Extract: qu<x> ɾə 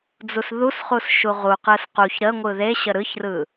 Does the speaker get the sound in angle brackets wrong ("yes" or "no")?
yes